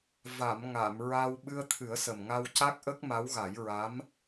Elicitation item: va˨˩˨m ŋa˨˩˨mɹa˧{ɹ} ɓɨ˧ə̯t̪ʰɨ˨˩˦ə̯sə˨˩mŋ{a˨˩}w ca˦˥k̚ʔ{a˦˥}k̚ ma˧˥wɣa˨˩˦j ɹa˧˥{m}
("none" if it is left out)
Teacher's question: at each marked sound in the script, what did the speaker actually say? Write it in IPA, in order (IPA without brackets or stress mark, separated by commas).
w, a˧, ə˦˥, m